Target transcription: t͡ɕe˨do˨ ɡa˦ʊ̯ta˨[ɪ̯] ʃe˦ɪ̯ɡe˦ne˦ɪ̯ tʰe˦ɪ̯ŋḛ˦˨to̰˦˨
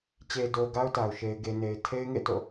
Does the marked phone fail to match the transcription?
yes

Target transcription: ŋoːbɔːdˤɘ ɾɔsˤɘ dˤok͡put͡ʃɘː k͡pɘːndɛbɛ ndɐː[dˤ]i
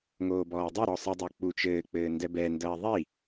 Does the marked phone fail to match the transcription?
yes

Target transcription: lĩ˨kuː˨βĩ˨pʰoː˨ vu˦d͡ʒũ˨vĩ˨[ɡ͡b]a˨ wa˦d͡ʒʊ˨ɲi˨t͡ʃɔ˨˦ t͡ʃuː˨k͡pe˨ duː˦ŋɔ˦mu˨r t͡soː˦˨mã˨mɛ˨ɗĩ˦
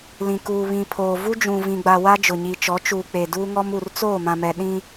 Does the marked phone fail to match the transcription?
no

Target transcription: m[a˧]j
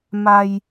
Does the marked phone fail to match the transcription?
no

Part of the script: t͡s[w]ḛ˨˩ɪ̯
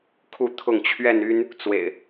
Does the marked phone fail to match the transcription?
no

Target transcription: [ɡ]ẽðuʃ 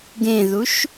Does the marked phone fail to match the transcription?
no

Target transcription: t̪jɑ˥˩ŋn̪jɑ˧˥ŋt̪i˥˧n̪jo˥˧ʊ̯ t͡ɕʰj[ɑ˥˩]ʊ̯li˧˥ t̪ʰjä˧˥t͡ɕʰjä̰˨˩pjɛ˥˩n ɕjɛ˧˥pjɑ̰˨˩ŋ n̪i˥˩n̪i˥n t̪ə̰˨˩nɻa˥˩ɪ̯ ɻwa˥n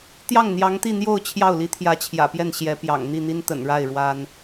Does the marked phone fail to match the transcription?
no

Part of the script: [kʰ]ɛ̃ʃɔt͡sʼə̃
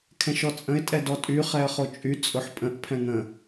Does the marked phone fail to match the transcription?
no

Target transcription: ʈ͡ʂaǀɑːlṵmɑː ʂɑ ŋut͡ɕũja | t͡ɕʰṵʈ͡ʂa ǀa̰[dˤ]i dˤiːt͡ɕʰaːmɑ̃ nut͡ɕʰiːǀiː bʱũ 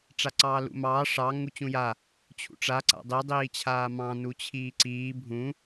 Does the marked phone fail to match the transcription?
no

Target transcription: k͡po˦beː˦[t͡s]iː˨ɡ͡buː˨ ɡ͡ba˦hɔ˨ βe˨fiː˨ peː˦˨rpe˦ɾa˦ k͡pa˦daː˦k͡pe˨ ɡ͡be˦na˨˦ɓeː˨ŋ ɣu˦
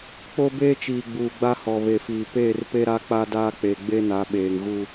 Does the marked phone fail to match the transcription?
yes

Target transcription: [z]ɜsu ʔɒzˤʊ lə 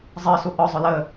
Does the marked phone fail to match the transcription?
yes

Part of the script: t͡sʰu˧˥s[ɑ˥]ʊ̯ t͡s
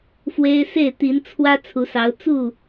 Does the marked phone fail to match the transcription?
yes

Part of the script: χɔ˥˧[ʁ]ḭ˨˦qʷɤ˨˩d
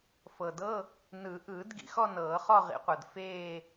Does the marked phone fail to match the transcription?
no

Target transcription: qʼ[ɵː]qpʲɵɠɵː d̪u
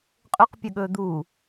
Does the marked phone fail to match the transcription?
yes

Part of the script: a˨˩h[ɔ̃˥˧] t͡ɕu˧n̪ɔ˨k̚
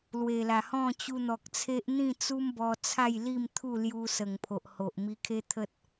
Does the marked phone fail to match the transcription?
no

